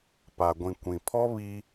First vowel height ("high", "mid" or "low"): low